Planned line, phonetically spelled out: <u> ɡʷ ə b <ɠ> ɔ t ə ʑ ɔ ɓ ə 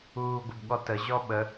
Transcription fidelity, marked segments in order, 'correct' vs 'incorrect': incorrect: uː, correct

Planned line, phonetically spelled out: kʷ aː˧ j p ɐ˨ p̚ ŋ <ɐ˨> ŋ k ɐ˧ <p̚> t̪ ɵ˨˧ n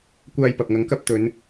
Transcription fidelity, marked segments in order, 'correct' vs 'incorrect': incorrect: ɐ˨˥, correct

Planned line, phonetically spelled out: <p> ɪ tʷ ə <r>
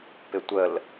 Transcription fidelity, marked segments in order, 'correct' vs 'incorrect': correct, incorrect: l

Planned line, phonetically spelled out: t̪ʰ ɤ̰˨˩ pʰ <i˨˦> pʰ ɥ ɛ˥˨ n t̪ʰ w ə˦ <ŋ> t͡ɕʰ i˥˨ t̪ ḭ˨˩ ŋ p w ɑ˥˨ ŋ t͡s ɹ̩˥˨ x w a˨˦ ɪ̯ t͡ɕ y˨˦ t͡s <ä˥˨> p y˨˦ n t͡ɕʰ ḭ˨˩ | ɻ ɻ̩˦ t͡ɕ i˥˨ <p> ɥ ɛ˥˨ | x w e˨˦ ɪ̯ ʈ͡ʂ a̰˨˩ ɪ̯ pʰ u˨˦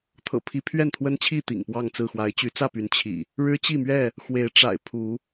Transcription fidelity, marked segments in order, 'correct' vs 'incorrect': correct, incorrect: n, correct, incorrect: m

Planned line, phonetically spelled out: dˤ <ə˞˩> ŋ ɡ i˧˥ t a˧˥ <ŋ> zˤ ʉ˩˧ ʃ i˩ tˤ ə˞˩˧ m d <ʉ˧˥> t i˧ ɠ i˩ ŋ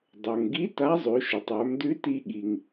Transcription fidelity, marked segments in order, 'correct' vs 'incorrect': correct, incorrect: none, correct

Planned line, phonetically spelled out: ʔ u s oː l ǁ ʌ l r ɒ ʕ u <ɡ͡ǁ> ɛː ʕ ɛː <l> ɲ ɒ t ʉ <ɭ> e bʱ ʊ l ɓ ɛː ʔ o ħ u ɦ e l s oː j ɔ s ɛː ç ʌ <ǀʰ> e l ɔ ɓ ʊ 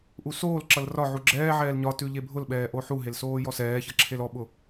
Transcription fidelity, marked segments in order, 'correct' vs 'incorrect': correct, correct, incorrect: ʎ, incorrect: ǁʰ

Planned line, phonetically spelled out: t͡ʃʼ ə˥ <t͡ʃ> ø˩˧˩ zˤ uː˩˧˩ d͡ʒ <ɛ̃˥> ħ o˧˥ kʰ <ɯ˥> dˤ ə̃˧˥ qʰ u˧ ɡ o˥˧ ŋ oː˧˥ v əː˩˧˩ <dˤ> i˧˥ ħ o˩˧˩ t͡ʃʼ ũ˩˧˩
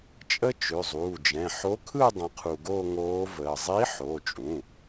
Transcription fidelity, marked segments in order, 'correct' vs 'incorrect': correct, incorrect: ɛ̃˩˧˩, incorrect: ɯ˥˧, incorrect: zˤ

